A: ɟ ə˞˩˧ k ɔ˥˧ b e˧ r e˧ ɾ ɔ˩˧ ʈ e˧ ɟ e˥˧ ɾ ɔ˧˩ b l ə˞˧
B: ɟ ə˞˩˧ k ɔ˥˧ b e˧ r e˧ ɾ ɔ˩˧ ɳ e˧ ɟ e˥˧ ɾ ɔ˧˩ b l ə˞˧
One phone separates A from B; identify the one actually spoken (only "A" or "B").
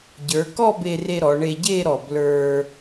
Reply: B